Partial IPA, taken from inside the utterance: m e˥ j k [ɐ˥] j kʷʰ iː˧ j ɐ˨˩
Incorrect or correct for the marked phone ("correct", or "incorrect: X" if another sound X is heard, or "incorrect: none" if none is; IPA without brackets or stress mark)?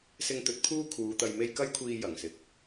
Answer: correct